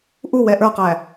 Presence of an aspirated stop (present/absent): absent